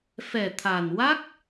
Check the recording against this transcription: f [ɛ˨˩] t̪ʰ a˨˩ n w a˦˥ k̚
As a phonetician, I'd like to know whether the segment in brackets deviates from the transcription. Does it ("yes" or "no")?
no